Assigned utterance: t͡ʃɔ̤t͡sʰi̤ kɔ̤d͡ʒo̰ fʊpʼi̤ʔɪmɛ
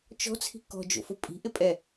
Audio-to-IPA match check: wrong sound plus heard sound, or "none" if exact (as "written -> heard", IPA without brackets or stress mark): m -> pʼ